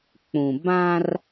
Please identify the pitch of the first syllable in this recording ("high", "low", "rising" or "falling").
low